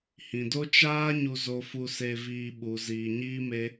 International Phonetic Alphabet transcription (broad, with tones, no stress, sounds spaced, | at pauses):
h ĩ˨ d o˦ t͡ʃ aː˦ ɲ u˧ z o˧ f u˧ s e˧ v iː˧ ɓ u˨ z iː˧ ɲ iː˦ m e˦